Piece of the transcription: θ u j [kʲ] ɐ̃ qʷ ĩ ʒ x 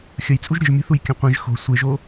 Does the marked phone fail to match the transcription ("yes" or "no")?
no